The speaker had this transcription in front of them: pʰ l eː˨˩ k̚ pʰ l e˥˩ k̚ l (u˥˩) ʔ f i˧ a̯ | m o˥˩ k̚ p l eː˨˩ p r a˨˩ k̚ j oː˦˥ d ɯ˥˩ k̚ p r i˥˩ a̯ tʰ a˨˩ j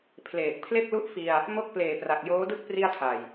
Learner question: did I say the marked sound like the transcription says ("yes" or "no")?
yes